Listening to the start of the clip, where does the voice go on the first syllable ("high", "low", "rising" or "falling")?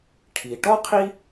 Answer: low